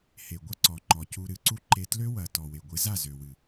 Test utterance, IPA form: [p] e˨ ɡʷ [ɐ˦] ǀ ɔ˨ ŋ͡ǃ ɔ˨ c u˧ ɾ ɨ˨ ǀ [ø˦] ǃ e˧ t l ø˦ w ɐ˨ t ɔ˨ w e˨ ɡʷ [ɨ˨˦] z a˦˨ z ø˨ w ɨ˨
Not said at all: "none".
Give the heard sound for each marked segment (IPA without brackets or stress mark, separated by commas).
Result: h, ɐ˦, u˦, ɨ˨˦